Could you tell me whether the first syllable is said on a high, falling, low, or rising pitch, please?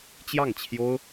falling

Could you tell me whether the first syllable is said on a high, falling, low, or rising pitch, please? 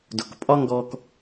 low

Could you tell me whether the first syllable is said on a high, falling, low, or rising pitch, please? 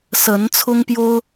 rising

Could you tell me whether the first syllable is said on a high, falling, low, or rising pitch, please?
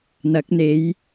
rising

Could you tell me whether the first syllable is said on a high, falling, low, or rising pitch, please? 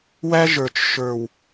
high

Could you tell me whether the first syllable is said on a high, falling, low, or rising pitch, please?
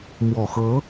low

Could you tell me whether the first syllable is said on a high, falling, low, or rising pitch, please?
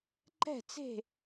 falling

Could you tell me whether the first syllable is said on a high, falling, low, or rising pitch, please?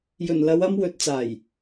low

